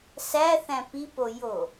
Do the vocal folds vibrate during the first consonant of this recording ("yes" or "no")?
no